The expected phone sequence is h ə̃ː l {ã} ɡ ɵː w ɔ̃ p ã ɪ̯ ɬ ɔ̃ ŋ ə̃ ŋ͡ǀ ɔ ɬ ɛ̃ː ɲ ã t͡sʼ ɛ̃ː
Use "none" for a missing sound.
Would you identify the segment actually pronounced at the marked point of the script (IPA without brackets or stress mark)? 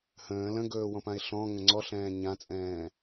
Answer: ə̃